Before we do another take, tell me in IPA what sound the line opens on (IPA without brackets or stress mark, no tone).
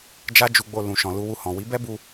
d͡ʒ